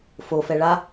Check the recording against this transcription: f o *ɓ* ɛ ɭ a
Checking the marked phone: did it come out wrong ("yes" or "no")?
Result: yes